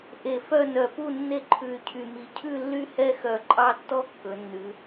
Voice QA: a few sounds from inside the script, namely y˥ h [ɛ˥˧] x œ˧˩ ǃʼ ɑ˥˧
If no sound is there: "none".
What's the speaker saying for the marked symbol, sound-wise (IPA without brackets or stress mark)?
ɛ˥˧